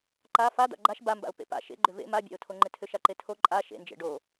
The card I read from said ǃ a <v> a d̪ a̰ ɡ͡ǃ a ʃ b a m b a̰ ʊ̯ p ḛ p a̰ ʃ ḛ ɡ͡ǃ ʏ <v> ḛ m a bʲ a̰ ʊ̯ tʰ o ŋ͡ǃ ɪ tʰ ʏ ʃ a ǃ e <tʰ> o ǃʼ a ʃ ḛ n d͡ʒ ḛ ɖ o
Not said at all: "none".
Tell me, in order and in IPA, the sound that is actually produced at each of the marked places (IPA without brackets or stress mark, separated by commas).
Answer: f, v, tʰ